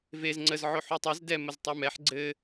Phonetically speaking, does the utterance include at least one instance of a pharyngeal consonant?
yes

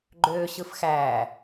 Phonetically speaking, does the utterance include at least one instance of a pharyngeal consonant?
no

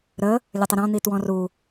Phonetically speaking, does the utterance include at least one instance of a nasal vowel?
yes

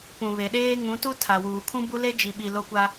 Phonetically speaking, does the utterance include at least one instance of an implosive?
yes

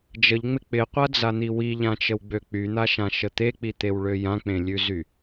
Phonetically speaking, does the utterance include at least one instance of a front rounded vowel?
yes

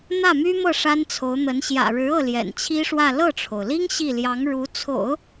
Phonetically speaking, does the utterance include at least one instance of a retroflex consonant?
yes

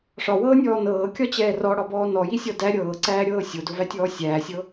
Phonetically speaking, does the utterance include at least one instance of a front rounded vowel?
no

